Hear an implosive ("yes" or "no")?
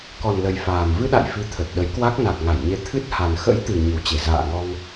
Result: yes